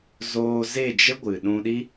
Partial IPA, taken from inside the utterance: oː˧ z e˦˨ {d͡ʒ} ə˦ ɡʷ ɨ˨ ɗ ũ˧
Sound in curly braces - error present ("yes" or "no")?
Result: no